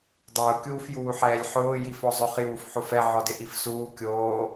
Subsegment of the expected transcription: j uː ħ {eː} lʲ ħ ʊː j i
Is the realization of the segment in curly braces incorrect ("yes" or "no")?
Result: yes